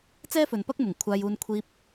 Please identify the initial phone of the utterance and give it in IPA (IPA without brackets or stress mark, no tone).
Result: t͡s